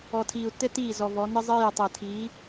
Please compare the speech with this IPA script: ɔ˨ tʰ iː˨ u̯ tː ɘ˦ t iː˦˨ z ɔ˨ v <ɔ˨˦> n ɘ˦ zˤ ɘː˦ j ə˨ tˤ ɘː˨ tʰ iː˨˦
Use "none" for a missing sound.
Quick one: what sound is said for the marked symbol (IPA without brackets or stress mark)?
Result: ɔ˨˦